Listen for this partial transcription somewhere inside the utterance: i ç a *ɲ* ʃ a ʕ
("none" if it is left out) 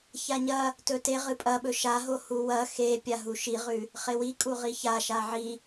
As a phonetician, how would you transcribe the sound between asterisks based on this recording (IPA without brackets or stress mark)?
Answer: none